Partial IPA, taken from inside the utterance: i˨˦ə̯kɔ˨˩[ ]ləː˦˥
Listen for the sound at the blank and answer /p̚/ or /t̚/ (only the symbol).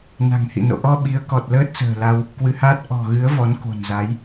t̚